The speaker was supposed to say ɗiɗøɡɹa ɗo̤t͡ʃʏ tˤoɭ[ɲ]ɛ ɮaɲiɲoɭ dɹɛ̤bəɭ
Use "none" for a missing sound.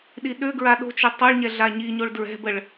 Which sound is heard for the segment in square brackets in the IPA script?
ɲ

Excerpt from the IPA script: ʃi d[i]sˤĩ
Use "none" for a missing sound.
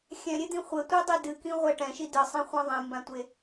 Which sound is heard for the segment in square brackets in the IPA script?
ɨ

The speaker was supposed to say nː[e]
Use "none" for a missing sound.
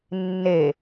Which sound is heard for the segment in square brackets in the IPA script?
e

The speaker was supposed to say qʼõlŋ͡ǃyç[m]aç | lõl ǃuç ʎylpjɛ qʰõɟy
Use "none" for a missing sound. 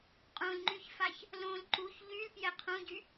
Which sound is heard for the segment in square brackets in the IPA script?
f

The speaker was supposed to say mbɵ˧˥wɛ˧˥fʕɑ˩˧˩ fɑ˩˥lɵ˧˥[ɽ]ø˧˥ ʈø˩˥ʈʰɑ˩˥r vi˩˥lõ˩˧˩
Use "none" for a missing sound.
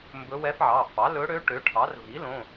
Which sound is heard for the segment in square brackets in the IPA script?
ɽ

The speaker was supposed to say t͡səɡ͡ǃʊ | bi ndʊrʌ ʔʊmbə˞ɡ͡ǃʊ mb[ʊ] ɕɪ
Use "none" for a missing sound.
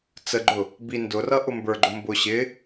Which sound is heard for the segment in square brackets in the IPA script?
ʊ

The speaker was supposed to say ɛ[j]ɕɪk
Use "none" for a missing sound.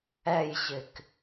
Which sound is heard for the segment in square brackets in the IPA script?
j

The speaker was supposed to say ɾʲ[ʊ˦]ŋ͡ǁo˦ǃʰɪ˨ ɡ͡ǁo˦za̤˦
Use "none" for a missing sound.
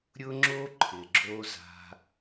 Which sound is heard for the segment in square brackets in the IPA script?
ʊ˦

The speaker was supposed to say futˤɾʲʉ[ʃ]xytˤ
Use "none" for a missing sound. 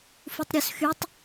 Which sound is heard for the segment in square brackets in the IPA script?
s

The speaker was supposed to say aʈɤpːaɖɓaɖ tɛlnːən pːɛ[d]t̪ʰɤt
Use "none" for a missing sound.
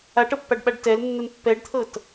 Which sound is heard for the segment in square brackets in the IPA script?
ɖ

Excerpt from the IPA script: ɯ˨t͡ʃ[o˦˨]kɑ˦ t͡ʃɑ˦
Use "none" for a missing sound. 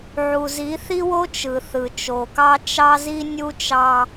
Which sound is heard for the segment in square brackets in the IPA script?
o˨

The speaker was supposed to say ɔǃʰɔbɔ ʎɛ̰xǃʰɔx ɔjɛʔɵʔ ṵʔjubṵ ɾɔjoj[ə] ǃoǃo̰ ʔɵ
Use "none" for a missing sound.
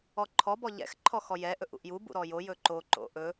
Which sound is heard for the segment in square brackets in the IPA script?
ɵ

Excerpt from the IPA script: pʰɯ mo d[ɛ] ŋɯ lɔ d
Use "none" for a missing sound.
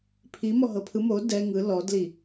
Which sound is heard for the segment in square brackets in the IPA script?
ɛ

